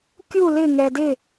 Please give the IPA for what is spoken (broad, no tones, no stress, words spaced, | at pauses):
kʲu lɪ ŋɛdɪ